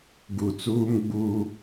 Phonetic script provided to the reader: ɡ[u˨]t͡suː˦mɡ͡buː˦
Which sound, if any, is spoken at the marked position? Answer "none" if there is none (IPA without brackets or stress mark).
u˨